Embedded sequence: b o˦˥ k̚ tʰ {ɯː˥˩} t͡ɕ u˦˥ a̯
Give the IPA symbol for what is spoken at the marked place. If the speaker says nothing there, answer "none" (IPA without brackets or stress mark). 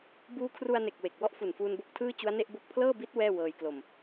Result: ɯː˥˩